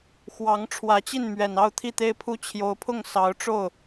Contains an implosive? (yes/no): no